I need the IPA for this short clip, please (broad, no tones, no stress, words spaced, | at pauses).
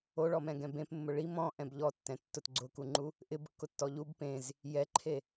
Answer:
oɭɔmɛ̃ɡɛ̃ bẽpmːʊ ɭim ɔ̃ʔɛ̃b ʎɔtːɛ̃tːʊt ɡ͡ǀʊkuŋ͡ǃu | ʔɪbkːʊtːɔ ʎub pẽz | jɛǃʰe